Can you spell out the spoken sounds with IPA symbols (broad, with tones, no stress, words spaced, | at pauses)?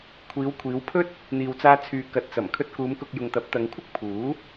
kʷʰiː˨˧wkʷʰiː˨˧w pʰɵ˥t̚ | n̪iː˨wt͡saː˧t͡sʰyː˨ kɐ˨t̚t͡sɐ˨˩m kʰɵ˧t̚kuː˨˧mkʊ˨k̚ jʊ˨ŋt̪ɐ˨˥p̚t̪ɐ˨˧ŋkʷʰɪ˥k̚ pʰuː˨˥